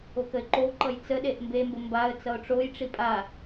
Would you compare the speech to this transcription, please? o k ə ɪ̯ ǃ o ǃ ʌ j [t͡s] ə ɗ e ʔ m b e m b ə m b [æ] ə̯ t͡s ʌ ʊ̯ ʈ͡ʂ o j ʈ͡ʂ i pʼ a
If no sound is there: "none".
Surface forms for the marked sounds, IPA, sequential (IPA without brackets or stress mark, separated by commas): t͡s, a